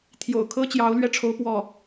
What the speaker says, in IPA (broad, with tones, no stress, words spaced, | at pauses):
t̪ʰjo̰˨˩ʊ̯kʰɤ˥t͡ɕjɑ˧˥ʊ̯ lɥɛ˥˩ʈ͡ʂʰo˧˥ʊ̯ pwɔ˥˩